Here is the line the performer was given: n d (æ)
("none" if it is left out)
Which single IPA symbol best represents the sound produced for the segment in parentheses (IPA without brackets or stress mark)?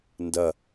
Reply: ɐ